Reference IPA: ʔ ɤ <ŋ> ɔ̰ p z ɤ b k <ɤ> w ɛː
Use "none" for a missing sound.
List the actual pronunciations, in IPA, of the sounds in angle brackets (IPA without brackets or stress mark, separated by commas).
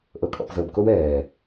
kʼ, o